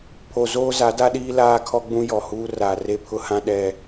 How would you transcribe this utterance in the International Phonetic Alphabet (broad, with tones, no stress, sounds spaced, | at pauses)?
pʰ o˨ z oː˦ z a˨˦ d a˦ ɗ iː˦ l aː˦ kʰ ɔ˦ ɡ͡b ũ˦ j ɔ˨ h uː˦ r aː˨ r e˦ pʰ ʊ˦ h ã˦ ɗ ɛ˦